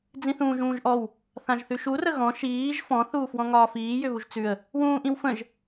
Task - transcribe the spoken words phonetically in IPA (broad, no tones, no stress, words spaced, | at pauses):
d͡zĩθũːʒũːʒʔɔw | θãʒθʉʃu rəɣɔ̃ ʃiːʒ fɔ̃ θuːfwɔ̃ŋɒːfiː jʏβuʒt͡sʉə̯ | wũːʔĩwfə̃ʒ